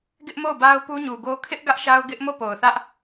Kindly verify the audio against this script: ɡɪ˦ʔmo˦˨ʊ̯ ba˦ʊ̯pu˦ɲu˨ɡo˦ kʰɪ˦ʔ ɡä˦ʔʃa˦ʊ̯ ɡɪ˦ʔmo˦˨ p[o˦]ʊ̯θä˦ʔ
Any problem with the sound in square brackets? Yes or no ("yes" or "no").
yes